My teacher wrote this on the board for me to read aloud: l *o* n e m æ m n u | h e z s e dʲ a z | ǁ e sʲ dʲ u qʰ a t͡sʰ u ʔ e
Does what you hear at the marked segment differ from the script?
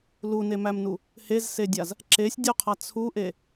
yes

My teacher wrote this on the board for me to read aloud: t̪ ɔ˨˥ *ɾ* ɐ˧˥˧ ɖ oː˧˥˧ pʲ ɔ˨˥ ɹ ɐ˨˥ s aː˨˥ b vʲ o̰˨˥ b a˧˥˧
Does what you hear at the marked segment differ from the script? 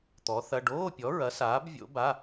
yes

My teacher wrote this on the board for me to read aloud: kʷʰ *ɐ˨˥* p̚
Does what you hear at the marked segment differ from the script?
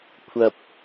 yes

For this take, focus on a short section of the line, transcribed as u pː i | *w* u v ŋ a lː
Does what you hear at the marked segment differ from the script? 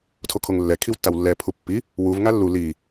no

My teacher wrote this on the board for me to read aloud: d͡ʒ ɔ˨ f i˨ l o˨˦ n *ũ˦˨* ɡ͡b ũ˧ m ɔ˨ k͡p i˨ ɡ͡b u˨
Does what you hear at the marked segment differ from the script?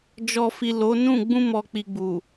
no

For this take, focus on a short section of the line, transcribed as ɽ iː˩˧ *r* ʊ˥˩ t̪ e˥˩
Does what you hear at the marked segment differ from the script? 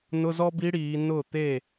yes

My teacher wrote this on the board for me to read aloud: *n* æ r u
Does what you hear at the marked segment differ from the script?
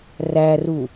yes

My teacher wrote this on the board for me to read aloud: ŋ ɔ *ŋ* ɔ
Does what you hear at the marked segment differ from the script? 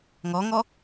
no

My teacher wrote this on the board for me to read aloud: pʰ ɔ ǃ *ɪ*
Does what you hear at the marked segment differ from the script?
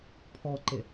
no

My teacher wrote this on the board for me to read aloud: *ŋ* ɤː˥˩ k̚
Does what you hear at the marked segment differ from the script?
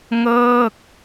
no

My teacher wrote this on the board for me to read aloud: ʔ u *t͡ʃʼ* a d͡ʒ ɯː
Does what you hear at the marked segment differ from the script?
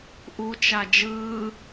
yes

